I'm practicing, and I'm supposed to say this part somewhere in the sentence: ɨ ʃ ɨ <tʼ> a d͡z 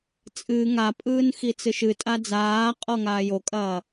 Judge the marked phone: correct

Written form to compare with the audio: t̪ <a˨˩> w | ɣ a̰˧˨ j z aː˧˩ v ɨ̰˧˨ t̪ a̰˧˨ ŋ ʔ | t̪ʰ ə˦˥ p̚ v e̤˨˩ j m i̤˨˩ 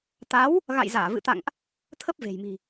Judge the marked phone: incorrect: a˨˦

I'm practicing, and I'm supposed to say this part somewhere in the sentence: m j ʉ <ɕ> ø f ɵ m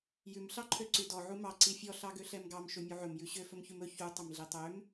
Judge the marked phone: correct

